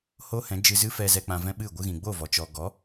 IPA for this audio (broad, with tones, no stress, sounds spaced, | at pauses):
h oː˦ h ɛ̃˨˦ d͡ʒ ɨ˧ z ɨ˦ f ɛ˧ z ɛ˧ k͡p ã˧ v ɛ̃˦ ɓ ɨ˦˨ ɡʷ ɨ˧ ɣ ĩ˨ ɡ͡b o˦˨ v ɔ˨ t͡ʃ ɔ˨ ɡ ɔ˨˦